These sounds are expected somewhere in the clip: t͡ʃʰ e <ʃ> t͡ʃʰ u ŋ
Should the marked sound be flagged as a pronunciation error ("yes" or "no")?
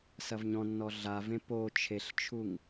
yes